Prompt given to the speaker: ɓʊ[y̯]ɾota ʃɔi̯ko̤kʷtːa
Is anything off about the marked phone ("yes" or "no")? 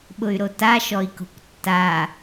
no